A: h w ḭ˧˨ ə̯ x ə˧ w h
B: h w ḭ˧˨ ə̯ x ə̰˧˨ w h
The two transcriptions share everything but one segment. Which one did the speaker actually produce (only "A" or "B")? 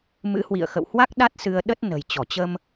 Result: B